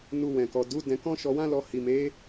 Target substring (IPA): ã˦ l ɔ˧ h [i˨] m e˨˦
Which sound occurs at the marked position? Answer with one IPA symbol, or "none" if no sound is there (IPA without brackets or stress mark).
i˨